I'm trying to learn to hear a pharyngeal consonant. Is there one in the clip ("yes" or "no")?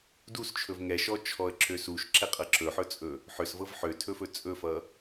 yes